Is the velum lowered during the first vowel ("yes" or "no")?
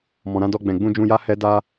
yes